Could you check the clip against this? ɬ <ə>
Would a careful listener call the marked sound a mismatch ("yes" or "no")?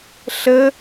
no